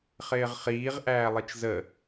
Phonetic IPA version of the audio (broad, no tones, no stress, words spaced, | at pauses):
χɪːʁχiːʁ ʔæːlˠit͡ʃzə